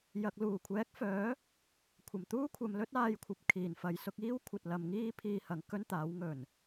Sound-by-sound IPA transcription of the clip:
jɐ˨k̚luː˨˩kʷʰɛː˨˥k̚fœː˨˥ | kʷʰɐ˨˩m t̪uː˥kʷʰɐ˨˧m lɵ˥t̚aː˧jkʷʰɐ˨p̚ kʰiː˨˩nfɐ˨˧jsʊ˧k̚ iː˥wkʷʰɐ˨t̚ lɐ˨˧mŋiː˥ pʰiː˧hɐ˨ŋ kɵ˥nt̪aː˨˥wŋɵ˨˩n

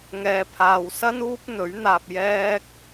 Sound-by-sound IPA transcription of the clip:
ŋɛː˧pʰaː˧w sɐ˥nuː˥p̚n̪ɵ˨˥ɥn̪aː˧p̚ jɛː˥k̚

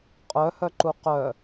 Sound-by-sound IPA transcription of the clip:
qʼœhœǃu qœ

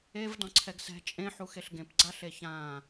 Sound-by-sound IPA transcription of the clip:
evdɔ̃ǀʰɛɡ sɛ̤ t͡ʃʼẽħuxeɬ ɡẽpɡ͡ǀaɬe çã

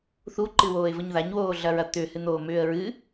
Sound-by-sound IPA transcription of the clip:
θuǃɨwoːɪ̯vəɲ ðaɲwoːɮɐɹɐ t̪ʏhɨn̪oːmʏːə̯ ɹɨ

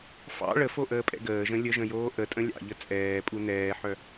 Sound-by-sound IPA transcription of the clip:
fɑ̰ ɭəfoʔəːpʼɛ̰ ɡəːʒə̃ lʲəʒə̃joː ʔətʼə̃ lʲɑ̰ʎə t͡sʼɛːpʼu nɛːħœ

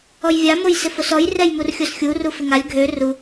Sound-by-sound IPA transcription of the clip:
ɔjvʲa mojsɪfosɔj rɛjmurxʲosxʲu rufɪŋalʲ ɡʱø ru

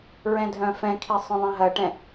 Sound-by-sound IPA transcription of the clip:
ɹɛ̃dʱœ̃fɛ̃kʰi sˤœ̃ðˤɛ̃ɦɐʈɛ̃

